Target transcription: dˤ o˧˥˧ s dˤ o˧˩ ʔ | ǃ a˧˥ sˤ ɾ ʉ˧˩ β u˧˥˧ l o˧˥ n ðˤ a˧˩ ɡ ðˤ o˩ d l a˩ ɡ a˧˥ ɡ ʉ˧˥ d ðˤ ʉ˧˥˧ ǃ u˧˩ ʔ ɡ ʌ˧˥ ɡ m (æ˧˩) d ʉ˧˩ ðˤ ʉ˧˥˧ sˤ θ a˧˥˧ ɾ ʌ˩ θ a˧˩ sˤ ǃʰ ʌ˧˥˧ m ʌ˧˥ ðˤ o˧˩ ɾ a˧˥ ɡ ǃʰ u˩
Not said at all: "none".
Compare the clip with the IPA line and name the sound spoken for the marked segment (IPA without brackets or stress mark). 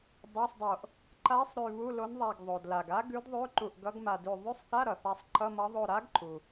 a˧˩